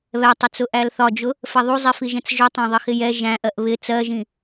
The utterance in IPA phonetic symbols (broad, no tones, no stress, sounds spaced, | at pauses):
β ɛ tˤ ɪ t͡s ʊ ʔ æ l θ ɒ d͡ʒ ʊ | f ɛ ðˤ u zˤ i f i ʒ ɛ̃ t͡s ʒ ʊ tˤ æ̃ ðˤ ɪ x ɪ j ɛ ʒ æ̃ ʔ ɜ ʔ β ɪ t͡s ɜ ʒ ĩ